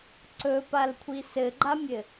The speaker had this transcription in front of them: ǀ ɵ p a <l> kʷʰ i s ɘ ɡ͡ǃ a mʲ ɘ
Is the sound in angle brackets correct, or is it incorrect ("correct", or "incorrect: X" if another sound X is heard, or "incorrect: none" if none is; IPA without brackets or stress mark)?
correct